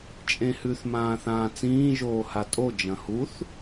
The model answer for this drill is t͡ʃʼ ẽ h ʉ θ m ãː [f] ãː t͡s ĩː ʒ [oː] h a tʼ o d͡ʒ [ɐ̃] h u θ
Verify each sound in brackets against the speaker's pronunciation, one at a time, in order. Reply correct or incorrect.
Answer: incorrect: θ, correct, correct

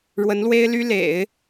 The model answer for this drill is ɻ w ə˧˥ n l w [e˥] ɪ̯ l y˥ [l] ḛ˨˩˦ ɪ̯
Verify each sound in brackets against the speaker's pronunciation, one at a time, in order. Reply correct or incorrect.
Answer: correct, correct

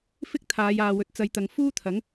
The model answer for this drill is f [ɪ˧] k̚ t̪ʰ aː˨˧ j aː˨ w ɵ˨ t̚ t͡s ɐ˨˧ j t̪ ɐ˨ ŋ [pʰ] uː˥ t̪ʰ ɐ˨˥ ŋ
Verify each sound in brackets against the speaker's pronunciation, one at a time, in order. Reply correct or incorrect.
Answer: incorrect: ɪ˥, incorrect: f

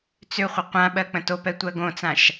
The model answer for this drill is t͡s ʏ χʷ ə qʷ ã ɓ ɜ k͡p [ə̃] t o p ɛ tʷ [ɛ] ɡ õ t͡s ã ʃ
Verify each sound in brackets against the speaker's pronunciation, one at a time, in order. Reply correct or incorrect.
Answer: correct, incorrect: ɜ

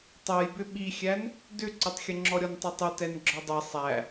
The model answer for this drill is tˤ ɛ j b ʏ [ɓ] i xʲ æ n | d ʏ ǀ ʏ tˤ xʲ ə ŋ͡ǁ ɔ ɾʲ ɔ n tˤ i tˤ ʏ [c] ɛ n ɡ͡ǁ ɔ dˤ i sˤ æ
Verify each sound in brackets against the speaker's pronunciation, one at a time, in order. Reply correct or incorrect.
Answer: correct, incorrect: t

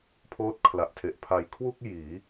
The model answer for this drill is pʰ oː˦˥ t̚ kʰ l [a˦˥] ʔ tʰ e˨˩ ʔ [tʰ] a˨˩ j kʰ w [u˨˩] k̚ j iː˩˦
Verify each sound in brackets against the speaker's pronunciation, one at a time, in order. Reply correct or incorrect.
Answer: incorrect: a˨˩, incorrect: pʰ, incorrect: u˥˩

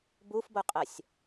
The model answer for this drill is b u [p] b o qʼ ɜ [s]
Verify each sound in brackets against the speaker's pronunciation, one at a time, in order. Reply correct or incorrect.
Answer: incorrect: f, incorrect: sʲ

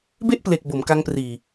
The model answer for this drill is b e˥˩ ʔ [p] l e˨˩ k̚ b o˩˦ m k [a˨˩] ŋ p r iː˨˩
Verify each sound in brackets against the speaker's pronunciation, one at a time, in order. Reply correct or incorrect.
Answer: correct, incorrect: a˧

